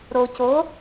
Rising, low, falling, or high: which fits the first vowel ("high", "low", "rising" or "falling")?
low